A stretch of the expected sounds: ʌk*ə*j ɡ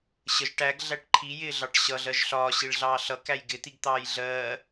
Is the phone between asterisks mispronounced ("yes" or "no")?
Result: yes